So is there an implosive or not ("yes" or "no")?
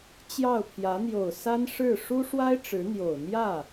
no